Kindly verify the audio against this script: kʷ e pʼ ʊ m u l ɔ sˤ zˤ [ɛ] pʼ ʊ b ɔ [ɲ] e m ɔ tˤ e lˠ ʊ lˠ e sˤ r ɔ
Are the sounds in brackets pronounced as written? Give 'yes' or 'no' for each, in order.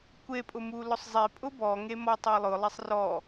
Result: no, no

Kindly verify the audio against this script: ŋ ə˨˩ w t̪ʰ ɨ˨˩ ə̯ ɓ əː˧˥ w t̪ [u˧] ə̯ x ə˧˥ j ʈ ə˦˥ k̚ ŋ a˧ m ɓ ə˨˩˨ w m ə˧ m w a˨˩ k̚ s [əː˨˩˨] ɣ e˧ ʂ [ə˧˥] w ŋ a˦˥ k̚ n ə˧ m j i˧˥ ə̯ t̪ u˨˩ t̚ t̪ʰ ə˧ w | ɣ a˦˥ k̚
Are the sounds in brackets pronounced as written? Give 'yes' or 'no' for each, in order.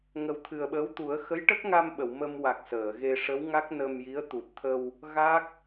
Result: no, yes, yes

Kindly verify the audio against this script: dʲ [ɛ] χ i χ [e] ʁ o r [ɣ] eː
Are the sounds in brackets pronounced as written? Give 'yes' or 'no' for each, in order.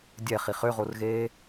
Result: yes, no, yes

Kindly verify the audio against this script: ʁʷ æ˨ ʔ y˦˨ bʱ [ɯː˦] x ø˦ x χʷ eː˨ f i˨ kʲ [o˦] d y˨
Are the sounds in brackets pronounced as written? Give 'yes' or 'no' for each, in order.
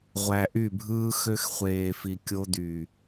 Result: yes, yes

